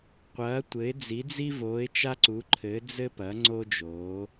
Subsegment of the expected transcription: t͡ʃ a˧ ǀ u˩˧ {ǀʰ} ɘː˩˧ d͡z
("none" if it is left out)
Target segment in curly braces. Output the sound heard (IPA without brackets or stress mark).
ǃʰ